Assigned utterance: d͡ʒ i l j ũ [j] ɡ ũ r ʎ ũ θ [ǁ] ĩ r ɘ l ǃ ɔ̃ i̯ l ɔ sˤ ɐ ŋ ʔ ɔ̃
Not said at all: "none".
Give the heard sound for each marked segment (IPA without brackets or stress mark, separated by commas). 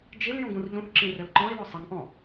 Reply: none, ǁ